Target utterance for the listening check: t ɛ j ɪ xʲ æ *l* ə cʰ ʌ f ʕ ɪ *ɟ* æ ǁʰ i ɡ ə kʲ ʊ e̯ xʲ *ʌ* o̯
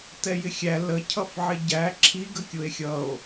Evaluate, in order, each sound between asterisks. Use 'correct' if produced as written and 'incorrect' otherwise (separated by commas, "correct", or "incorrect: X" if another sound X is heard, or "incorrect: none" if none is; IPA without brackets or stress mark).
correct, correct, correct